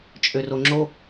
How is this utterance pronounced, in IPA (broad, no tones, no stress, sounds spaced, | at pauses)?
t͡ʃʼ ø r o ŋ͡ǁ o